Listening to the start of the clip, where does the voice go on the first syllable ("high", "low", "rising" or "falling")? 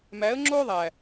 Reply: rising